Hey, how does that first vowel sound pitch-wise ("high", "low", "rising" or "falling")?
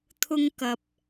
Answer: high